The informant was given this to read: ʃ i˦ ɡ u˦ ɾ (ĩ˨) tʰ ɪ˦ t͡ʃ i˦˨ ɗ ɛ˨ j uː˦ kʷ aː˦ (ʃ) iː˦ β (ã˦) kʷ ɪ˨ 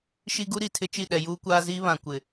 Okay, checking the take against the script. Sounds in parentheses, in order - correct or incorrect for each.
incorrect, incorrect, incorrect

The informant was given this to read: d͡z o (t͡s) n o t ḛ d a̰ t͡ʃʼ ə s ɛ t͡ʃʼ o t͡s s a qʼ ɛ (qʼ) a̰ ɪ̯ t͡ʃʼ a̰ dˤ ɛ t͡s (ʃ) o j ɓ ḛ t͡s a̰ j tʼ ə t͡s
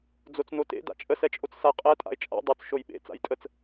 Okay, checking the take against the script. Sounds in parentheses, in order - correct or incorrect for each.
correct, incorrect, correct

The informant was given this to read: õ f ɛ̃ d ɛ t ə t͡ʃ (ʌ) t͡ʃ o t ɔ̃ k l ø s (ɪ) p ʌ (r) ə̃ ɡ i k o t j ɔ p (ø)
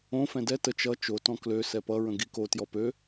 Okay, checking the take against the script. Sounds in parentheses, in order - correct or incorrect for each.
correct, incorrect, incorrect, correct

